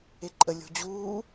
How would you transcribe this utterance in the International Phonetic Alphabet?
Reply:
e ǃʼ ə lʲ o̤ d͡ʑ uː

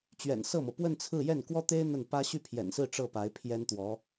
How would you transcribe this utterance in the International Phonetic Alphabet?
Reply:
t͡ɕ ɥ ɛ̰˨˩ n s ɤ˥˩ m ɤ˩ p w ə˥˧ n t͡sʰ ɹ̩˥˧ j ɛ˥˩ n k w ɔ˥ t̪ e˥ ɪ̯ n̪ ə˥˩ n p ä˥ ɕ y˥˩ pʰ j ɛ̰˨˩ n s ɹ̩˥˧ ʈ͡ʂ ɤ˥˩ p a˧˥ ɪ̯ pʰ j ɛ˥ n t̪ w ɔ˧˥

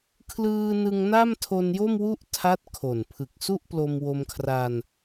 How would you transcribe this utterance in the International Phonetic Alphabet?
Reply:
kʰ l ɯː˧ n ɯ˧ ŋ n a˥˩ m tʰ o˧ n j o˥˩ m w u˥˩ ʔ tʰ a˦˥ t̚ kʰ o˨˩ n pʰ ɯ˨˩ k̚ s u˥˩ ʔ p l o˧ m w o˧ m kʰ r a˧ n

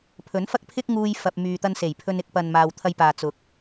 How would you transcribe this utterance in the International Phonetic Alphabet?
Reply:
pʰ ɵ˨˥ n f ɐ˥ k̚ pʰ ɪ˥ k̚ ŋ uː˧ j f ɐ˨ p̚ m yː˨ t̪ ɐ˧ n s e˨˩ j pʰ ɵ˧ n ɪ˨˥ k̚ p ɐ˨ n m aː˨ w t̪ʰ ɐ˧ j p aː˨ t͡s ʊ˨˥ k̚

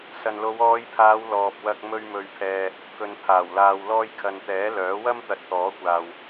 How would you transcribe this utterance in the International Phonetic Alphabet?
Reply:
s ɐ˨ n l o˨˧ w ɔː˨˧ j pʰ aː˨˧ w l ɔː˨ p̚ w ɐ˧ k̚ m ɵ˧ ɥ m ɵ˨ ɥ pʰ ɛː˨ | k ɵ˨ n pʰ aː˨˩ w l aː˨ w l ɔː˧ j kʰ ɐ˨ n t̪ ɛː˨˥ l œː˨˥ w ɐ˥ m t̪ ɐ˨ t̚ t̪ ɔː˨˥ kʷ aː˨ w

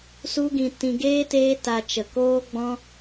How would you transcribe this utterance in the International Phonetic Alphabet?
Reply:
s u˦ ɡ ĩ˧ t ĩ˧ ɡ eː˦ t eː˦ t a˧ t͡ʃ ə˨ k oː˦ ɡ͡b ɔ̃˦

